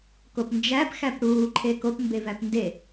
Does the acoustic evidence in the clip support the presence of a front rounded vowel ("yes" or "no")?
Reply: no